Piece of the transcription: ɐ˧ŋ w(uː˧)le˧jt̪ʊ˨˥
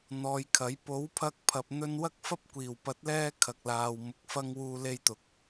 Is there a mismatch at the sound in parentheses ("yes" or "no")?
no